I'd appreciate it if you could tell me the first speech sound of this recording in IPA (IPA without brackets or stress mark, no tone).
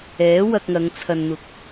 ɛː